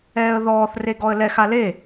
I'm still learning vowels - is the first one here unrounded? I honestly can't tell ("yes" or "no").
yes